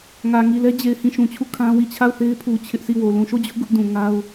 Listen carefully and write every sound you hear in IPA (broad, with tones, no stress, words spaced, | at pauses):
ŋä˨ŋi˨lɛ˦ d͡ʑe˨ɪ̯hĩ˦˨ ʃũ˨t͡ɕʰu˦˨ kʰã˦wi˦˨ t͡ɕʰa˦˨ʊ̯θe˦ɪ̯pʰu˨ t͡ɕʰɪ˦ʔsʰi˦˨wo˨ lũ˨ʃo˦˨d͡ʑʊ˦ʔ ɡʊ˦ʔdũ˨ŋa˦ʊ̯